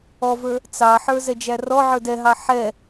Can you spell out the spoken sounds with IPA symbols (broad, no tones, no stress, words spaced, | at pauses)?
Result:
ɔvə˞ | t͡sɑħə˞ zɛd͡ʒærɔʕə˞d ɛɦɑ ħɛ